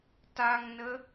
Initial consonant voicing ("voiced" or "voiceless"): voiceless